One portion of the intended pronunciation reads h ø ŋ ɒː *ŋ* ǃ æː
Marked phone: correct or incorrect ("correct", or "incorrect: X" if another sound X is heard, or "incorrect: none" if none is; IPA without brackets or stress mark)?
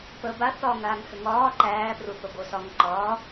incorrect: none